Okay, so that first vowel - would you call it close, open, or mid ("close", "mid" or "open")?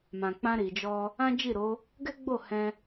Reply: open